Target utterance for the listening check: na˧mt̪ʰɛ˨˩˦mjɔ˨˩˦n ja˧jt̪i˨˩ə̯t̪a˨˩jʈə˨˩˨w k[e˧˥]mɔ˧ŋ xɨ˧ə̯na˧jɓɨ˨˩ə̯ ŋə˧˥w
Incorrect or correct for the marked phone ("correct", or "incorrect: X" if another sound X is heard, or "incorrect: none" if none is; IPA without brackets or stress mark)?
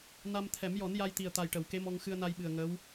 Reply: correct